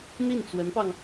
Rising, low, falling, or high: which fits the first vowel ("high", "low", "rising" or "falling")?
falling